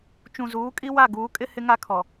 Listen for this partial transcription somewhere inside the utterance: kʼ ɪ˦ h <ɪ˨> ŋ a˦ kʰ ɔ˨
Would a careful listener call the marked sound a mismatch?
yes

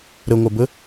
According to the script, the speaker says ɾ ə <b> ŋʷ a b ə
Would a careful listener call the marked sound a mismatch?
yes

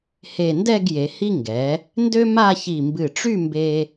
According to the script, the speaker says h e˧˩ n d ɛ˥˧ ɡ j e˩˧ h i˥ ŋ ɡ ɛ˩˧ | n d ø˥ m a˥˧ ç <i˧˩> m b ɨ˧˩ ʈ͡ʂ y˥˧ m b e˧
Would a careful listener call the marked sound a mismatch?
no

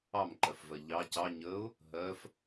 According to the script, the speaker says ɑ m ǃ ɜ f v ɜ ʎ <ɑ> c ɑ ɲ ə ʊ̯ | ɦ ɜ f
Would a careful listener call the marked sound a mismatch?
no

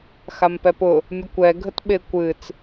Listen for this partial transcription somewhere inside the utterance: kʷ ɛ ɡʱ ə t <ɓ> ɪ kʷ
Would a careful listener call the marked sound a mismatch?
no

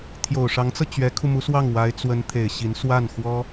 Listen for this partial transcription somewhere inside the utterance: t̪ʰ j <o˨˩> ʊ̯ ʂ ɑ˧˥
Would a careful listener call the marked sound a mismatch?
no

